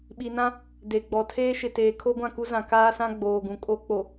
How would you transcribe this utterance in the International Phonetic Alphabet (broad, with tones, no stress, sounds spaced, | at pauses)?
ɓ i˨ n ã˦ | d e˨ ɡ͡b ɔ˨ tʰ eː˦ ʃ ɪ˨ t eː˨ kʰ o˦ ɡʷ ã˦˨ k u˦ z ã˨ k aː˦ s ã˦ ɡ͡b oː˨ ɡ ũ˨ kʼ o˦ k͡p o˨